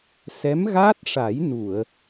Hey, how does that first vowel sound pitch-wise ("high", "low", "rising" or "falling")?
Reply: rising